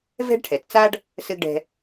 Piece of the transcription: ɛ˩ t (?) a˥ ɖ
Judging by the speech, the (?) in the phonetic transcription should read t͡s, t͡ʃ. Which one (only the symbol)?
t͡s